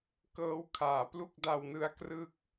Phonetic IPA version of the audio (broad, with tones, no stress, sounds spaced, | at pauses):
k ɤː˦˥ w kʰ aː˩˦ p l u˥˩ k̚ d a˧ w n ɯ˧ a̯ k r ɯ˦˥ k̚